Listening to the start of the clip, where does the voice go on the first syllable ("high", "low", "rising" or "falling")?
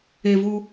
low